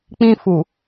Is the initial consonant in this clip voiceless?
yes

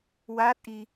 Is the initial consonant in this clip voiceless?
no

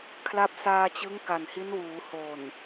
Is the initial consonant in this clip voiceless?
yes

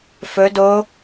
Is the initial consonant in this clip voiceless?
yes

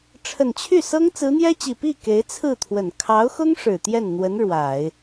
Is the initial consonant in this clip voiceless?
yes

